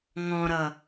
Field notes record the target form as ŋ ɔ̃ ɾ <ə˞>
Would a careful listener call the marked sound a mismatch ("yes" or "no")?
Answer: yes